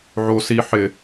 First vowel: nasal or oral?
oral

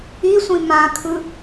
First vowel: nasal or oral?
oral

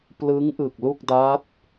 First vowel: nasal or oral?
oral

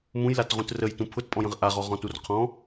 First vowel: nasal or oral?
nasal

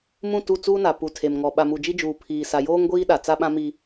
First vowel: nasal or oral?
nasal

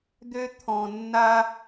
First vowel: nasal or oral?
oral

